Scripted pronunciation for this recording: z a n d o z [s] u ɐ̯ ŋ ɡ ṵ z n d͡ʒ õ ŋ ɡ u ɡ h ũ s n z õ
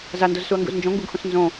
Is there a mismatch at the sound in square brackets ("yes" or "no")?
no